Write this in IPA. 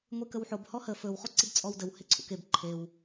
ŋʷ e k ə w ħ o b h ɔ h ə f ɵ w χ o ǀ i b t͡sʼ ɔ w d ə w h e ǀʰ ṵ k e b ǃʰ e w

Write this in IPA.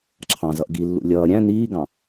ǁʰ ɑ̃ z ʌ ʔ ɡ i lː ṵ lʲ ʌː ɾʲ æ̃ n iː ɡ ɑ̃

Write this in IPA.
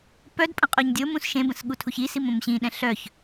p œ d pʼ ə̃ qʼ o ɲ dʲ o m ũ s ʃ ẽ b ə̃ s ɠ u tʰ u ç i s i m õ m ɕ ĩ ɗ ɛ̃ ɬ œ ç

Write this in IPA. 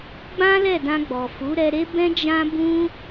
ɡ͡b ã˦ l ɛ˦˨ d ã˧ ɡ͡b ɔ˨ f u˨˦ ɾ ɛ˧ ɾ e˦ b ɛ̃˦ d͡ʒ ã˦ b ũ˦

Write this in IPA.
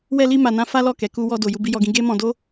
w ɛ˧ l i˧ m a˨ n ã˧ f a˦ l ɔ˦˨ k ɛ˨ k u˧ w ɔ˧ d o˨ j u˧ b i˧ j ɔ˧ ɡ ĩ˧ ɡ e˦ m ɔ̃˧ d o˦

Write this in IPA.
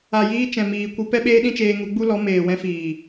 a˨ j iː˧ t͡ʃ ɛ̃˨ m iː˨ kʷ ɨ˧ p ɛ˦ ɓ eː˦ ɗ ĩ˦ t͡ʃ eː˧ ŋ u˧ ɡ͡b u˦ l ɔ˨˦ m eː˨ w ɛ̃˧ f iː˨

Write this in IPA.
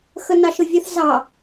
x ə n ɑ ʃ ʊ vʲ ə θ z ɑ

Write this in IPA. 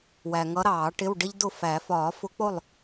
w æ˨ ŋ ʌ˧˥ ɾ ɑː˨˩˦ ʈ ɪ˧˥˧ w ɖ ɪ˥ ʎ d ʊ˥˨ f æ˨˩˦ f ɒː˨˩˦ f ʊ˧˥ k͡p ʊ˥˨ lˠ

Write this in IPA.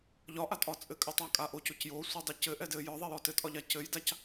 ʎ ɒ ʔ a tʼ ɒ t͡sʼ ɘ kʼ ɘ tˤ a kʼ a ʔ o c o c j o sʷ e dˤ ɛ c ɘ ʔ ɛ d ɘ j ɒ ðˤ e j ɔ t ɘ tʼ ɒ ʎ a c ɘ j d a c

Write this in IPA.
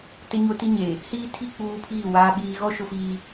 t ɪ˦ ɲ o˦ t i˦ ɲ e˨ | h iː˦ tʰ i˦˨ k͡p uː˦ pʰ iː˦˨ w aː˨ ɓ iː˨ ɣ ɔ˦ ʃ ʊ˦ f iː˦

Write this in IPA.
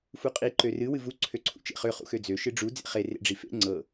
f u qʼ i ǃ ø r ɨ w ɨ v u ǀʰ ø ǀʰ ṵ t͡ʃ ḛ χ ø χ ṵ x ø d͡z ø ʃ ɨ ɖ͡ʐ u d͡z ḛ χ e r ḛ ɖ͡ʐ i f ḛ ŋ͡ǀ ɤ

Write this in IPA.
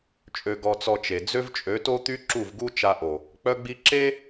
t͡ʃʼ ø˧ ɡ ɔ˧ t͡s ɔ˧ t͡ʃ e˨ d͡z ø˦ v t͡ʃʼ ø˨˦ t o˦ t̪ y˦ ǁ u˦˨ v ɡ u˦ t͡ʃ a˧ ʔ o˨ | k͡p œ˦ ɡ͡b i˦ ǁ e˦

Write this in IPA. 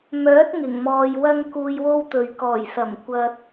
m œː˨˥ t̚ ŋ ɪ˨˩ ŋ m ɔː˨ j w ɐ˥ ŋ k uː˧ j w o˥ w t̪ ɵ˨ ɥ k ɔː˨˩ j s ɐ˨˩ m kʷ ɐ˨ t̚

